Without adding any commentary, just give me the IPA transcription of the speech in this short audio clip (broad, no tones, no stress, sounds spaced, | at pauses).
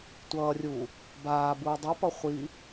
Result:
tʷ ʌː rʲ uː | b aː b uː dˤ ɯ p ʌ χʷ i